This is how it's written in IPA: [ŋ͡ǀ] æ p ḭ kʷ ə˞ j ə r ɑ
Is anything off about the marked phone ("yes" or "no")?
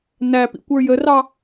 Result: yes